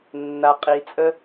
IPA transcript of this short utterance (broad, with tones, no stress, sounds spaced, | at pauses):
nː a˨ qʼ i˨ t͡sʼ ə˦